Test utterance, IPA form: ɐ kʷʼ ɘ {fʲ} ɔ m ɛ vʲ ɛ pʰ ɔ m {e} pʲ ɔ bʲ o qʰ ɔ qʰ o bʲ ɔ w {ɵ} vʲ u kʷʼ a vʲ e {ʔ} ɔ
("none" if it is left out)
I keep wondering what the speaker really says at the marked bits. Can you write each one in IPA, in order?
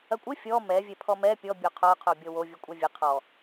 fʲ, ɛ, o, qʰ

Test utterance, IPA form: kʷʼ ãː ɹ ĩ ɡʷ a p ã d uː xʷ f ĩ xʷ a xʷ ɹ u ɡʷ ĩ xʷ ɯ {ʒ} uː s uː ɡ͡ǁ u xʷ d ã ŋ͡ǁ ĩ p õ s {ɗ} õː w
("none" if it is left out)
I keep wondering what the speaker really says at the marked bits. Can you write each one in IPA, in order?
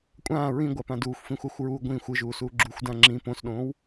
ʒ, ɗ

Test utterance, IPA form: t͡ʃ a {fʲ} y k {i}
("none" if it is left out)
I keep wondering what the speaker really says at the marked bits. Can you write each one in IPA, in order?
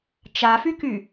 f, y

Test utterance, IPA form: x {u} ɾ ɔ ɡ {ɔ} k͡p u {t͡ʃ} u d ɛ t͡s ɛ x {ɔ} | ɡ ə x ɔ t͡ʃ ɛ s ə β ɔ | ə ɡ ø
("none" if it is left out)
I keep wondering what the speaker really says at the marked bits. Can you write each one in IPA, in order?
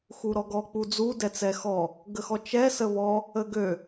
u, ɔ, d͡z, ɔ

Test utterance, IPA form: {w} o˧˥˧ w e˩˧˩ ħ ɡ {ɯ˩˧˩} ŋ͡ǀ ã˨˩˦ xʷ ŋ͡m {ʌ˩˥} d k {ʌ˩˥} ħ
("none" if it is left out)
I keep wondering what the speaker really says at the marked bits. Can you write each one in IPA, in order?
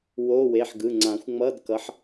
w, ɯ˩˧˩, ʌ˧˥˧, ʌ˩˥

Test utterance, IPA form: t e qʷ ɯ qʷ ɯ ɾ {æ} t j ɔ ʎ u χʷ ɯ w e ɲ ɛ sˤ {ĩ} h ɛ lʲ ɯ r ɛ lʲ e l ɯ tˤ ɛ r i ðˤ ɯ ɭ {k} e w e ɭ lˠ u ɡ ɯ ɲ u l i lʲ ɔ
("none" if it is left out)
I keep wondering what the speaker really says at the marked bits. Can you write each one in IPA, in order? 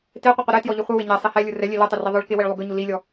ɛ, i, k

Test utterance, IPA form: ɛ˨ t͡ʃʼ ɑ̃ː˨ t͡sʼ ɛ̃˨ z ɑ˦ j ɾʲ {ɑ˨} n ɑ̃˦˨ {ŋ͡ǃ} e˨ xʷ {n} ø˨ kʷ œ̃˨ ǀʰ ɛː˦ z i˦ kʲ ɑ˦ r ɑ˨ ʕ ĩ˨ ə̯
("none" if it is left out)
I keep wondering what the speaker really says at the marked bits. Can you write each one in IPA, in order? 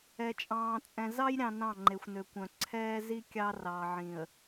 ɑ̃˨, ŋ͡ǃ, n

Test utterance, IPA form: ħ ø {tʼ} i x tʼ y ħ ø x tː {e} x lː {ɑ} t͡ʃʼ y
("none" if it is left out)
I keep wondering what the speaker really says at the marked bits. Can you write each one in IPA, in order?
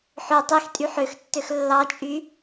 tˤ, ø, ɑ

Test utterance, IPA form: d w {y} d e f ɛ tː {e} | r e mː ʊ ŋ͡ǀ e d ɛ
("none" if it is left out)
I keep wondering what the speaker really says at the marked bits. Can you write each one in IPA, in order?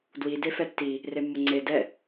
i, i

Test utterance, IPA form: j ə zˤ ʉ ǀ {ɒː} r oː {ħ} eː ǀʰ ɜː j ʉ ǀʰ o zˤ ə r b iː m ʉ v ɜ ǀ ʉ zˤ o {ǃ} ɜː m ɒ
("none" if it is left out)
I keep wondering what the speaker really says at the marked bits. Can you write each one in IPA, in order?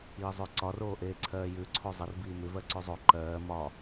ɒ, ʔ, ǃ

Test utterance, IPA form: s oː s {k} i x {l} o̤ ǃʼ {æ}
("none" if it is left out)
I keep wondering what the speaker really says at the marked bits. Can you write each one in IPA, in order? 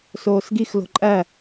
ɡ, l, æ

